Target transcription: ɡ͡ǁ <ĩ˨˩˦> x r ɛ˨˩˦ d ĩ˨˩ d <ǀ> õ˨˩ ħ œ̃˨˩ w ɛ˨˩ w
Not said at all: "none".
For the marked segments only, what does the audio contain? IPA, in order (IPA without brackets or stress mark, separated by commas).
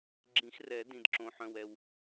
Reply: ĩ˨˩˦, ǁ